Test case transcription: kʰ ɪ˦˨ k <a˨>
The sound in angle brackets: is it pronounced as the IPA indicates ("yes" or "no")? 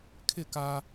no